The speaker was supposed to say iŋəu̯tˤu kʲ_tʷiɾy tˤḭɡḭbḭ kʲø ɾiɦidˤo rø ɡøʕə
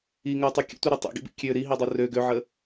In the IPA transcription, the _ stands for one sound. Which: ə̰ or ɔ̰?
ə̰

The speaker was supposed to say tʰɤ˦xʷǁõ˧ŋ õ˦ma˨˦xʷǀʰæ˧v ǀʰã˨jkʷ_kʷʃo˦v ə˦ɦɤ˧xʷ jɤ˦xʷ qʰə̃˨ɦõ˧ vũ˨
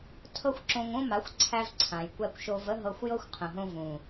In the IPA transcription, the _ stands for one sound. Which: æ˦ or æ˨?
æ˦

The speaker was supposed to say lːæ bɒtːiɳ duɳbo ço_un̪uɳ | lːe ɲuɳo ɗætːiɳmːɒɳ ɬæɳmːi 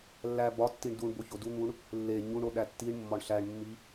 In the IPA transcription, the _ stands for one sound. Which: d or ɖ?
d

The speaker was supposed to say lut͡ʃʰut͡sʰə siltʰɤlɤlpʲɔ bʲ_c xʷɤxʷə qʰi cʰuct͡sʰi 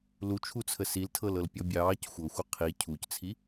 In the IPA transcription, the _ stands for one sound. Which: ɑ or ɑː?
ɑː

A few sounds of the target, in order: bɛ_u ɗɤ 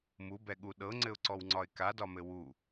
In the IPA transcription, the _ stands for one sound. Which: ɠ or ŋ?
ɠ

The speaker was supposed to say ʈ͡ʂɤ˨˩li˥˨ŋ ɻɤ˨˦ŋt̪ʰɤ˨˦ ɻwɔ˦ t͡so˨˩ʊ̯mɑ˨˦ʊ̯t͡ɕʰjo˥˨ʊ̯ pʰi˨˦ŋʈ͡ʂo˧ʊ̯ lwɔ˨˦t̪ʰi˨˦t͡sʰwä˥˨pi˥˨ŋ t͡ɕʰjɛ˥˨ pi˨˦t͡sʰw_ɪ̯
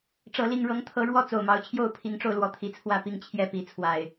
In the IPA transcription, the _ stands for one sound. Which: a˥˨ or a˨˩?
a˨˩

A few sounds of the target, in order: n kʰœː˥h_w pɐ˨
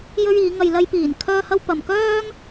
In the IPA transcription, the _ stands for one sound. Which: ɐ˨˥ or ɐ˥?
ɐ˥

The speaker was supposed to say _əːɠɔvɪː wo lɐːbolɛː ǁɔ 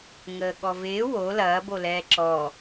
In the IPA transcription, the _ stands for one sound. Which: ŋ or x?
ŋ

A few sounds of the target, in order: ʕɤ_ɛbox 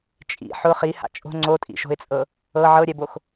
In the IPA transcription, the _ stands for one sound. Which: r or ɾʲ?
ɾʲ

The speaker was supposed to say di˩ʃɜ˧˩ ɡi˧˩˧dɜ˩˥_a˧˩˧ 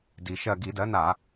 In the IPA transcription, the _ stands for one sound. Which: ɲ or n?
n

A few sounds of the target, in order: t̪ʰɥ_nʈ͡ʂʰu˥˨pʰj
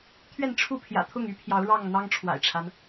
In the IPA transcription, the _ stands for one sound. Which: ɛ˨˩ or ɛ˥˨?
ɛ˥˨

